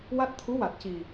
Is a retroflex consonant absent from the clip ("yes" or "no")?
yes